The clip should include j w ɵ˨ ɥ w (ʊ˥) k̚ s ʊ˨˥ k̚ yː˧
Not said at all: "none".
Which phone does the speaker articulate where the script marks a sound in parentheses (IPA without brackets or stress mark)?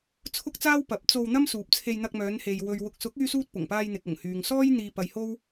ʊ˨